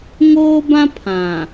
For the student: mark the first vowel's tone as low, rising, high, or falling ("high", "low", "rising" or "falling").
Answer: high